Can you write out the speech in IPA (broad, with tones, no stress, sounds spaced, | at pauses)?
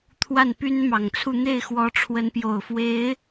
t̪ʰ w a˥˩ n p y˥ n m ɑ˨˩ ŋ t͡sʰ u˥˧ n̪ e˥˩ ɪ̯ x w ɔ˧˥ ʈ͡ʂʰ w ə˧˥ n p j o˨˩ ʊ̯ f w e˧˥ ɪ̯